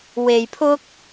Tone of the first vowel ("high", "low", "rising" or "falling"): low